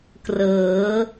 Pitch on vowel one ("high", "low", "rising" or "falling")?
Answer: rising